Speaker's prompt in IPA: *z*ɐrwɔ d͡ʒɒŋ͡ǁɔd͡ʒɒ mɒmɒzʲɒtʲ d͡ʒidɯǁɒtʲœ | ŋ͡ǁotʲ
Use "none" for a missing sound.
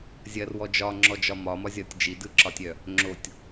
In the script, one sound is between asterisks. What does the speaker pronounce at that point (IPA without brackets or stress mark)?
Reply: zʲ